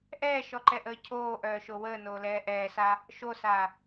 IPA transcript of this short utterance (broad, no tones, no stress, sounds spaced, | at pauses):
ʔ ɛː ʃ ɔ ǃ ɛ ʔ əː cʰ oː ʔ œː ʃ o w əː n oː l ɛː ʔ ɛː s a | ʃ o s a